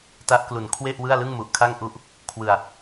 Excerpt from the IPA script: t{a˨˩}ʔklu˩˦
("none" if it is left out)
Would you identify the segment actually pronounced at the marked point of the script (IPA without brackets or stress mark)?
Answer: a˦˥